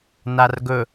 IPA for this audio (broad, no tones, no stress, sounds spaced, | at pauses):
n a r ɡ ɵ